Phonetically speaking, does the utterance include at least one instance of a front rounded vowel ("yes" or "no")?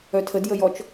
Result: yes